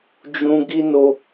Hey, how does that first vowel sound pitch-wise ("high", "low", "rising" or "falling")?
high